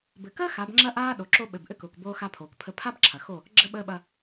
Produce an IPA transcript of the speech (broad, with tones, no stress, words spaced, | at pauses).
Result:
bɘ˨kəː˦ xa˨˦bŋ͡ǁɐ˦ʔaː˦ ɗo˨ǁo˦ ɓɘ˨b ʔɘ˦kʊː˨kboː˦ xa˦pʰoː˨kpʰə˦ pʰa˦b ǁʰɐ˨ xo˦˨ | ɡ͡ǁə˦ɓəː˦ɓɐ˦